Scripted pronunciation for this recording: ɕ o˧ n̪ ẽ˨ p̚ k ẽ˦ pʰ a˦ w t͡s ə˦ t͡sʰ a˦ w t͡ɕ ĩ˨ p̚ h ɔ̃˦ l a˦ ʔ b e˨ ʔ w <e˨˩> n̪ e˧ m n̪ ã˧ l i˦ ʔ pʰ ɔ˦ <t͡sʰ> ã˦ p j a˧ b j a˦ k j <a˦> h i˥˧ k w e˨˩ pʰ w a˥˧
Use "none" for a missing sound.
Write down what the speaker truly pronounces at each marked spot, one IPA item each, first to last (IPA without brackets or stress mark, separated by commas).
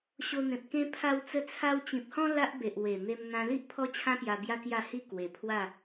e˨˩, t͡ɕʰ, a˥˧